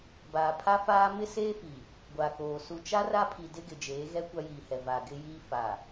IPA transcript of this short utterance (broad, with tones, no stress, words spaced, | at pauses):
baː˨pʰa˦faː˦ mɪ˦seː˦fi˨ | ɡʷa˨koː˨ su˨ t͡ʃa˦ ra˦pʰi˨ dɪ˦ ɡɪ˨d͡ʒeː˨˦ ɣɛ˦ kʷa˦jiː˨hɛ˨ va˨ɡɪ˦jiː˦ fa˨